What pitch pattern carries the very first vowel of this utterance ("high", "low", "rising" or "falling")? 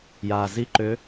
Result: low